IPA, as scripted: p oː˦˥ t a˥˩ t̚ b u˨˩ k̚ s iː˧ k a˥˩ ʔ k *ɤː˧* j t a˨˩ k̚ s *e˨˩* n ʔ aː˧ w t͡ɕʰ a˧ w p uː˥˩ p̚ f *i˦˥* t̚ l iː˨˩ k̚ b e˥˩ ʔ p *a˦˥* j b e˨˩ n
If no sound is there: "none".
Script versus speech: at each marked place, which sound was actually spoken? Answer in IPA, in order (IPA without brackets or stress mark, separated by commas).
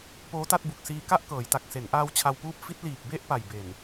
ɤː˩˦, e˩˦, i˦˥, a˨˩